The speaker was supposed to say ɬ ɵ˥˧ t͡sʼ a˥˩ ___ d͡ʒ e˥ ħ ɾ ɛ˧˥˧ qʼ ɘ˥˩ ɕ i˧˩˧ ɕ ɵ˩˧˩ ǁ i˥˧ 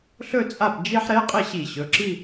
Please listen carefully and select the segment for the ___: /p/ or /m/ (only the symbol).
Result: p